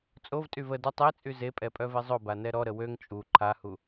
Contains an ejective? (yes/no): yes